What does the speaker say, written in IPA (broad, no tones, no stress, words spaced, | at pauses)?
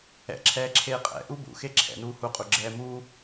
ɛ̰ǁʰɛː ǁʰeːqʼɛ̰ ʔubṵ xeǁʰɛ̰nuː huqʼuɡ͡ǁɛː muː